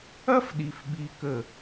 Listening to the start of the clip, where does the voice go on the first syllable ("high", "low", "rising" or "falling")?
high